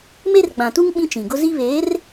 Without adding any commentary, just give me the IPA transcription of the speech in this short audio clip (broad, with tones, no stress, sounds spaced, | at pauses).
m e˦ r ɡ͡b ã˨ t u˦ ŋ ɓ ĩ˦ t͡ʃ ĩ˨ ɡ ʊ˦ z i˦ β eː˨˦ r